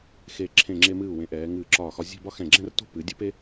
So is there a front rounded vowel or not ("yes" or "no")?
no